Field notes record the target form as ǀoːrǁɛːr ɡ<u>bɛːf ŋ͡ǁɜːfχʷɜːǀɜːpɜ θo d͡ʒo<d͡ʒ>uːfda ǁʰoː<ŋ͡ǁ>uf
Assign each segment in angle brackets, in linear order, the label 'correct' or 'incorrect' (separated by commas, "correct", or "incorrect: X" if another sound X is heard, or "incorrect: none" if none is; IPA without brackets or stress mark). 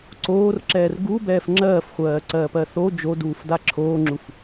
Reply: correct, incorrect: d, correct